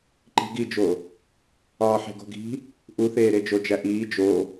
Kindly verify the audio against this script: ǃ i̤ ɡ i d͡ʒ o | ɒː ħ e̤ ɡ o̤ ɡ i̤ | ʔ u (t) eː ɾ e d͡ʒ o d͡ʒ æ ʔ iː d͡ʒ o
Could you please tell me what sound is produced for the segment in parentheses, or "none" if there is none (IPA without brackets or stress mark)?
θ